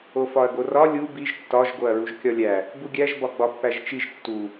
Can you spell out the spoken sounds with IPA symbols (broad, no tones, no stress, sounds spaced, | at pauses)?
o f ɒ ɐ̯ ɡ o r ɒ lʲ u b i ʒ tː ɒ ʒ ɡ o ɐ̯ ɹ u ʒ kʲ ɒ lʲ æ | b u ɡʲ æ ʒ b ɒ ɡ͡b ɒ pː æ ʒ t͡ʃ i ʒ tː u